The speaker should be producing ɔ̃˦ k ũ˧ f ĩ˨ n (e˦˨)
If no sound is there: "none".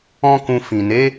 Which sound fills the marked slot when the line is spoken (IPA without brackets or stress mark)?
e˨˦